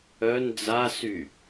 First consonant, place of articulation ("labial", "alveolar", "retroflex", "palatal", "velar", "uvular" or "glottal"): alveolar